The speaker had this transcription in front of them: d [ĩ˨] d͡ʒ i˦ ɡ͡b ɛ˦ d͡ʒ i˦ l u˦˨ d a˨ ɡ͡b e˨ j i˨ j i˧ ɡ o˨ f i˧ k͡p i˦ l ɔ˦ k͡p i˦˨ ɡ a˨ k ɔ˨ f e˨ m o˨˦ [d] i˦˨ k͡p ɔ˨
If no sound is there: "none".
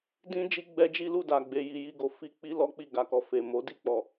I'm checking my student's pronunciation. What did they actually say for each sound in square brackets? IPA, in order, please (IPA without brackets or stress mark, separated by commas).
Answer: ĩ˦, d